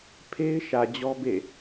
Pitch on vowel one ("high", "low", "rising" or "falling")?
high